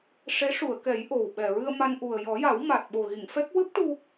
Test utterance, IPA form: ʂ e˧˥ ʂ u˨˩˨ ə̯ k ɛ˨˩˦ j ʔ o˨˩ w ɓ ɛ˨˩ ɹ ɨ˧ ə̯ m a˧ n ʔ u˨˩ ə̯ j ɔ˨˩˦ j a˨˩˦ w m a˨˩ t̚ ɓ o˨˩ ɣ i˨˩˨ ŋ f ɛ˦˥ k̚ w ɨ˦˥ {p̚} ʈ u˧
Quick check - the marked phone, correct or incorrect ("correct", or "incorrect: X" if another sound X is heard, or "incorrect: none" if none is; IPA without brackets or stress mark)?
correct